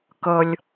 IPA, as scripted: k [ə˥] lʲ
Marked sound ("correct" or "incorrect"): incorrect